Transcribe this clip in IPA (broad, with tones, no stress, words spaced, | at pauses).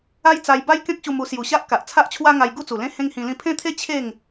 a˦jt͡sa˧j ba˦j kẽ˦k̚ɕu˧mu˧ sju˨˩ɕa˦ʔ ka˨ʔ t͡sʰa˦ʔt͡ɕʰwa˦ŋa˧j ɡu˥˧t͡su˨˩lẽ˦ hẽ˦ŋhĩ˧lĩ˥˧ pʰẽ˦t̪ʰe˦ t͡ɕʰe˥˧ŋ